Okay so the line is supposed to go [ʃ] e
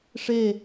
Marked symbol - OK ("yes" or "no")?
no